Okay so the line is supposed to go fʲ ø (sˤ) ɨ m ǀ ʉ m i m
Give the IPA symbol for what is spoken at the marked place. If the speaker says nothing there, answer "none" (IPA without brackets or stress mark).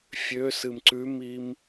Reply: s